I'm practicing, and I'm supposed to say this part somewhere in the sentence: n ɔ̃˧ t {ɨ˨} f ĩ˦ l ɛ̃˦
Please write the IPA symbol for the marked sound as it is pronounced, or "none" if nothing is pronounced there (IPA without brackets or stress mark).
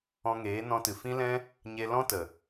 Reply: ɨ˨